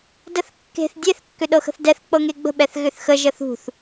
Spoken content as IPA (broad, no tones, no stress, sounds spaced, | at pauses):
d ə θ kː e̤ θ dʲ e θ kː ʏ ɗ ɤ x ə̤ θ d ɛ θ k͡p ɤ ŋ e ɡ͡b ə̤ ɓ ɛ θ ɣ ʏ θ x ə ʒ ə θ ṳ θ